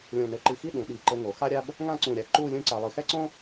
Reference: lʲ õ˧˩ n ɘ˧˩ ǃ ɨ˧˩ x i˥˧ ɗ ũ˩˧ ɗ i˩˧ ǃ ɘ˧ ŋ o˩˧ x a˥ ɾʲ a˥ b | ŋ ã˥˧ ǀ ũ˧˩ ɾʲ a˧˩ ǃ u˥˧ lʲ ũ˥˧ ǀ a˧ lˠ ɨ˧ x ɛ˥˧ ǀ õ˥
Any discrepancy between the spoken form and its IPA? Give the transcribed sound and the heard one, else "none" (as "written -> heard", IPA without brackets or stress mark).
none